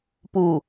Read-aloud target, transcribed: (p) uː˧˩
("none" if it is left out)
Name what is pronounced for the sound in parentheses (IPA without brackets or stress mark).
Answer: p